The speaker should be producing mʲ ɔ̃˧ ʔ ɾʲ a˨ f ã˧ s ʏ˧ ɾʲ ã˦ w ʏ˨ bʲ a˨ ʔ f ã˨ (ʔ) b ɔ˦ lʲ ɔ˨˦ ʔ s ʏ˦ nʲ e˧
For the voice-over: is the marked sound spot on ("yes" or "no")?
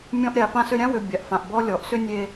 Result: yes